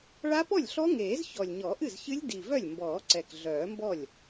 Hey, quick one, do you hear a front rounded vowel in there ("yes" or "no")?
yes